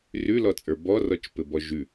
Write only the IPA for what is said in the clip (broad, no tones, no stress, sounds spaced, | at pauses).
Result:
r ʉ l ɔ t͡sʼ ə˞ b ɔ r ɔ t͡ʃ p ɘ b ɔ ʒ ʉ